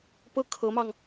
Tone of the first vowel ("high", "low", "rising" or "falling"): falling